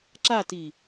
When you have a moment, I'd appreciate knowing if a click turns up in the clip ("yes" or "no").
yes